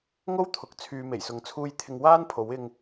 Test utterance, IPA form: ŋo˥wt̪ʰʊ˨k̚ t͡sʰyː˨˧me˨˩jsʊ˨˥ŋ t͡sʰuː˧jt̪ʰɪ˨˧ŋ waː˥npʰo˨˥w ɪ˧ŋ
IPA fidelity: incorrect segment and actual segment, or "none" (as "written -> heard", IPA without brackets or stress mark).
none